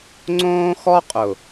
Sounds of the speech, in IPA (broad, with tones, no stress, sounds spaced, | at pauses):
ŋ͡ǀ õː˦ x ɔ˦ qʼ ʊ˨